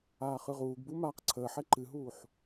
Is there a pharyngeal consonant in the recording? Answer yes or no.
yes